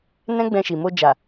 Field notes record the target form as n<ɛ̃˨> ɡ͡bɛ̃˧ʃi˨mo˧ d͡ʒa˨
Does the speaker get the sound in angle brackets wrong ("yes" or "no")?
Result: yes